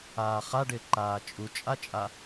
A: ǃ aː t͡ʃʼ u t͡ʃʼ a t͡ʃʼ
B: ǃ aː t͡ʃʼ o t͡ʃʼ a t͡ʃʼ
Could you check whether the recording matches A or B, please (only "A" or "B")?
A